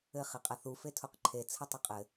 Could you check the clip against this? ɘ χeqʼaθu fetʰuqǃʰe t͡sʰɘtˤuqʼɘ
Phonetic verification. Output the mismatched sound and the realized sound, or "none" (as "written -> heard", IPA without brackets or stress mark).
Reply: none